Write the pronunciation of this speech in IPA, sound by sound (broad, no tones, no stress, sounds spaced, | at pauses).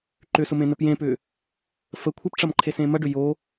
ǃ ʏ s ʊ m ẽ n ə p j ẽ p ʏ | f ə kʷʰ ə p ʈ͡ʂ ɐ m ǃʰ e s ẽ m ɐ ɖ ʏ j o